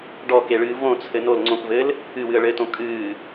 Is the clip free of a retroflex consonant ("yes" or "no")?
no